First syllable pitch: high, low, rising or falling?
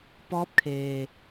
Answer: rising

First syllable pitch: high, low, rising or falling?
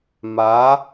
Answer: rising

